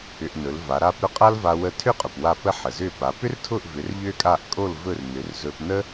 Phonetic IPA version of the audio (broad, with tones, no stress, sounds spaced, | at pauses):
ʏ˧ ʔ n ɵ˩˥ l v a˩˥ ɾ a˥ p ɾ ʊ˥ qʼ a˥ l v a˧ w ə˧ tʰ ʏ˥˩ qʼ ʊ˩ p w a˥˩ p ə˥ ħ ə˩ z ʏ˥˩ p a˩˥ p ʏ˥ r tʰ ʊ˥˩ ʔ v ʏ˩˥ r ʎ ʏ˥ kʼ a˥˩ ʔ kʼ o˥˩ l v ɵ˥˩ r n ʏ˩˥ r z ɵ˧ p n ə˥